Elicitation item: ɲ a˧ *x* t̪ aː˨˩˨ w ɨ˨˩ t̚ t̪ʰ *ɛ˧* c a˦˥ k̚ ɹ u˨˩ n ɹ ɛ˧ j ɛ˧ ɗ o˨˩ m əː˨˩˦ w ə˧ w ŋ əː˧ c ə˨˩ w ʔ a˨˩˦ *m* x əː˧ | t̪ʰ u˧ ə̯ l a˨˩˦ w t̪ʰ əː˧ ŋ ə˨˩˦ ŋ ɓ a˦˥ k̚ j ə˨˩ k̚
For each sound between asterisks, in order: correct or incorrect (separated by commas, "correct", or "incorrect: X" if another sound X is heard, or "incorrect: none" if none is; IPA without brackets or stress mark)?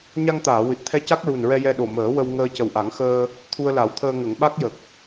incorrect: ŋ, correct, incorrect: ŋ